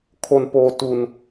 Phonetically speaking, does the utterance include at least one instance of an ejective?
no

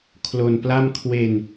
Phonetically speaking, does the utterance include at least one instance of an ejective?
no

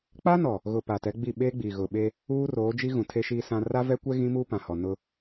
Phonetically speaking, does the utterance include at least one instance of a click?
no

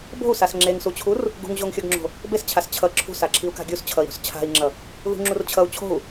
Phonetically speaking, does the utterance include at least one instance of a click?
yes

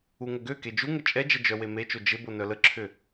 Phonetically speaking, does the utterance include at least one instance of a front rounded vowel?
yes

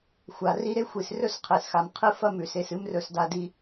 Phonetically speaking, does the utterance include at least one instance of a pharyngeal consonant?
no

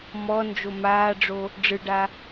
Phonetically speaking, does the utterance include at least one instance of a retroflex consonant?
yes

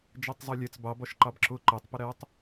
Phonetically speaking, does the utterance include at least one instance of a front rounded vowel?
no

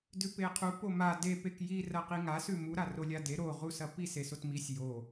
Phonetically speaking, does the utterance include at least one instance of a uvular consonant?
yes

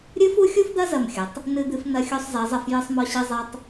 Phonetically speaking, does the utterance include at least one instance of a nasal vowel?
no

